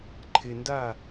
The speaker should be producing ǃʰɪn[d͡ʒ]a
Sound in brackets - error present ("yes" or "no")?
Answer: yes